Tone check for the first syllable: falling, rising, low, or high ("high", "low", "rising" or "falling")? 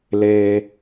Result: high